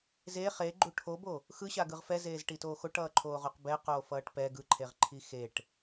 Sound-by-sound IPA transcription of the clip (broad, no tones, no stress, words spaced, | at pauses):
ze χeɡ͡ǃu ʈʰobo | xɯɕaɡɯʁ fɛzeːzʈitoː xoʈʌːǃʰoːʁoq bɛqoːfʌːʈ pɛ ɡɯǃʰeʁǃʰi xeʈ